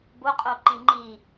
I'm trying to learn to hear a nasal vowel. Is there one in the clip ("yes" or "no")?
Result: yes